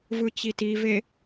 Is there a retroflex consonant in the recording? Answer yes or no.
no